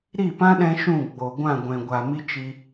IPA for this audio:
ɾ i˦˨ p ã˦ ɗ ɛ̃˧ ʃ ũ˦˨ ɡ͡b o˨ ɡʷ ã˦˨ ɡʷ ɛ̃˨ ɡʷ a˨ m i˦ t͡ʃ i˧

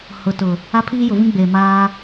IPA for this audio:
h ʊ˨ t ʊ˨ | a˦ pʰ iː˦ j ʊ˨ v ĩ˦ ɡ͡b eː˨ m aː˦

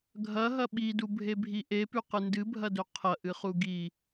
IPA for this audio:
ɡʱ ɐ ɦ ɐ ɓ i d u bʱ e bʱ i ʔ e p ʉ q ɨ n d ɨ bʱ ɐ d ɵ qʰ ɐ ʔ ɨ χ u ɡ i

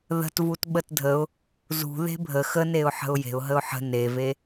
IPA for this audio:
ð ə̤ t v u t ɓ ə t dʱ ə ʊ̯ | z ṳ ð e̤ bʱ ə x ə n e ʊ̯ ħ ə̤ ʊ̯ j e̤ ʊ̯ ɦ ə ʊ̯ ħ ə̤ n e v e

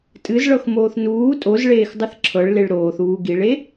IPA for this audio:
tʼ ɨ z ɭ ɤ x m oː θ n uː tʼ o z ɭ eː x dˤ ɨ θ ǁʰ ɤ ɭ l e ɭ ɾ oː θ uː ɡ i ɭ e

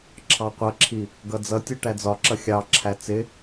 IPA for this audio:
ǁʰ ɑ qʷ ʌ ǁʰ i | ɡ ʌ d͡z ʌ tʲ u ʈ æ d͡z ɒ ǁ ʌ xʲ ɑ ǁʰ æ t͡s ɪ

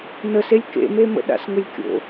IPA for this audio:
n ə s e lʲ k ḛ m e m ə̰ ɗ a̰ s ŋ ə lʲ kʲ o̰

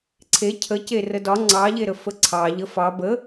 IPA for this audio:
ǀʰ e cʰ ə c e r ə d ɒ ŋ͡ǀ ɑ ʎ e ɾ ə f ə ǀʰ ɑ ʎ ə f ɑ b ə

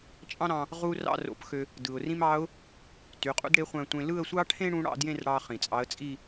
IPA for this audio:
t͡ʃʼ ɑ̃˥ ɾ ɑ̃˧ | ʁ u˥ r ɑ̰˥˧ r o̰˧ p x ø˧ | d ɯ˩ ʊ̯ r ĩ˥ m ɑ˧˥ ʊ̯ | t y˩˧˩ qʼ ṵ˥ d ɽ e˧˥ χʷ æ̃˧ tʷ ẽ˧ l ɯ˥˧ ə̯ sʷ ɑ˥ ʈʰ ẽ˥ ɽ ũ˧˥ ɽ ɑ̰˥˧ d j ẽ˥˧ r ɽ ɑ˧ χ ĩ˩ t͡sʼ ɑ˧˥ ə̯ t͡sʼ i˥˧

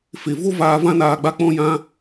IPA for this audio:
f e˨ v o˦ v aː˧ v ã˦ n aː˧ ɡ͡b a˦ k͡p ɔ̃˦ j ã˦

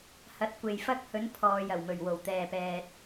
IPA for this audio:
h ɐ˨ t̚ kʷ e˨ j f ɐ˧ k̚ h ɵ˨˧ n pʰ ɔː˨ j ɐ˨˩ w m ɵ˨˩ ɥ w o˨˩ w t̪ ɛː˨ p ɛː˨ t̚

